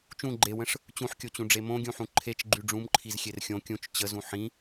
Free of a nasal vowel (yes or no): no